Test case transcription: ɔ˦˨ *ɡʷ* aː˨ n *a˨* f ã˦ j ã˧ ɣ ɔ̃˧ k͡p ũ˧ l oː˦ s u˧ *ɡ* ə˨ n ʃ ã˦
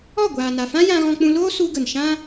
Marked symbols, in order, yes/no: yes, yes, yes

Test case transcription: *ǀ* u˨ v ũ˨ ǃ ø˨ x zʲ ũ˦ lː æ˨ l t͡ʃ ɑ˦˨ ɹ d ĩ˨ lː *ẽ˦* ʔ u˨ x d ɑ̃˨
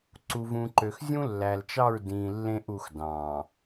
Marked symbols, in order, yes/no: yes, yes

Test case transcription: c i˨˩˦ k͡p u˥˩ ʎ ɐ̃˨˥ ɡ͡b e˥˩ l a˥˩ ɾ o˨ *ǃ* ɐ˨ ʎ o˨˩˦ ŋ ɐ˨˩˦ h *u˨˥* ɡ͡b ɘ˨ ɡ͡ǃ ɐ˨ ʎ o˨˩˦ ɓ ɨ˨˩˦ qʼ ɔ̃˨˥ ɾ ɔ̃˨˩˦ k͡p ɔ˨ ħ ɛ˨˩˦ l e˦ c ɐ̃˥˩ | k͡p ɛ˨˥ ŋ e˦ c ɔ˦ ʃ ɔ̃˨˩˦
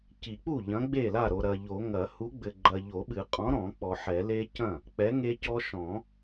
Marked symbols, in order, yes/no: no, yes

